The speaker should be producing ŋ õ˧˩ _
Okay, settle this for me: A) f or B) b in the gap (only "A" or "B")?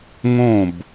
B